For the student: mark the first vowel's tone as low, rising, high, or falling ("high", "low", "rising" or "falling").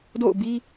falling